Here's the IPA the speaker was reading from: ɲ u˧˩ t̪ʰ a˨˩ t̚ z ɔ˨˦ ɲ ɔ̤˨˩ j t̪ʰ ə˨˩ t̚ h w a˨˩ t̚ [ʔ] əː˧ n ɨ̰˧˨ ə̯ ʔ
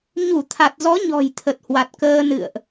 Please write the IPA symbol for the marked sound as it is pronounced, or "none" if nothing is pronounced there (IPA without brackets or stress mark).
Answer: k